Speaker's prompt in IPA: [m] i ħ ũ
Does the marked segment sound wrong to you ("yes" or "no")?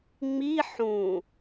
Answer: yes